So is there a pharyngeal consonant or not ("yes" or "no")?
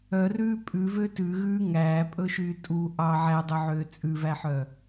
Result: yes